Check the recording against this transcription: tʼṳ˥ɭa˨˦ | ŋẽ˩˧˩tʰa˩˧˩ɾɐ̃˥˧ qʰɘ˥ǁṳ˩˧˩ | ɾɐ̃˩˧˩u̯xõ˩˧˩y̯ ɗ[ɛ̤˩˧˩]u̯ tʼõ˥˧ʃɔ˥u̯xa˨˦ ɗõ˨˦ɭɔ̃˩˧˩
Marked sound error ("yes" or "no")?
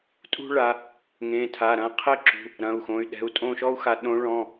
no